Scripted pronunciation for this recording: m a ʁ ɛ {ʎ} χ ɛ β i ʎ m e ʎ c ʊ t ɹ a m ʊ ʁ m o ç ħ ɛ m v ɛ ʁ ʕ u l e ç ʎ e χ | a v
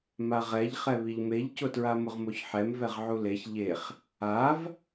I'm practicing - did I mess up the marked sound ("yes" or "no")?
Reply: no